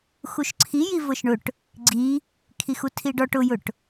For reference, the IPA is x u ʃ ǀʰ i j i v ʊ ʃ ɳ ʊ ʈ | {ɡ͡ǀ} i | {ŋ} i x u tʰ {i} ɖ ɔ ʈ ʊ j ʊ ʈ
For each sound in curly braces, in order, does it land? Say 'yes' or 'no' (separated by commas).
yes, no, yes